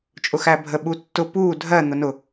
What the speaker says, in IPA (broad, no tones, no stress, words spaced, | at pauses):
t͡ʃʼʊxæbʱə ɓutːʊ puː dʱɜ n̪ʊnʊ